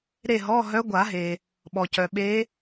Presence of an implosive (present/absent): present